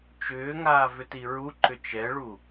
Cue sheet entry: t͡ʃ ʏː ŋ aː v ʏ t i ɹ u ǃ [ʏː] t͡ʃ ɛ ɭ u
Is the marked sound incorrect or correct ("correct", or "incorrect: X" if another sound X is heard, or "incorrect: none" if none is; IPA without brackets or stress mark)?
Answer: incorrect: ʏ